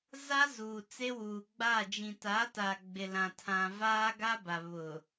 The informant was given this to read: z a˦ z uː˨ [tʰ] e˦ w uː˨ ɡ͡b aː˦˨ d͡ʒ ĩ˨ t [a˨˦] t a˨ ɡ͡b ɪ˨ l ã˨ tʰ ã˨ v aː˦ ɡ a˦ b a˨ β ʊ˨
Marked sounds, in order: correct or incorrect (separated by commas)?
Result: incorrect, correct